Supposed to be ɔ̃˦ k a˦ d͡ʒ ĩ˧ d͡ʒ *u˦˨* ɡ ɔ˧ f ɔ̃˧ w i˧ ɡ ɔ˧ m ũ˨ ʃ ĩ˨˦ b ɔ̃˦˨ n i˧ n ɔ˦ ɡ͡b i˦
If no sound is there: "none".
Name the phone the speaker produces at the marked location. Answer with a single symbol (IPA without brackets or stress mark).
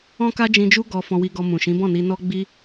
u˦